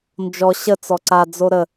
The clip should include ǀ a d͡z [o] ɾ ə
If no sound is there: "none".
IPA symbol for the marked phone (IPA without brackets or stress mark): o